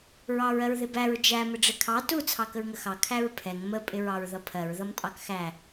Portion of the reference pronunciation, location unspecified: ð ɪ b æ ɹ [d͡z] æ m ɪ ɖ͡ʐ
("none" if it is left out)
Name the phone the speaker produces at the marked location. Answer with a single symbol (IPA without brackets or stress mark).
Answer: d͡ʒ